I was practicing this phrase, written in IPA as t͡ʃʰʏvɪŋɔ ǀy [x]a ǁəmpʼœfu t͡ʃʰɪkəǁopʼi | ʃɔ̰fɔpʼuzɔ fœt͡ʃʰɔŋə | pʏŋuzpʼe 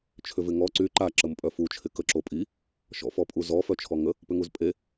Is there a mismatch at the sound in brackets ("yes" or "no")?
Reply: yes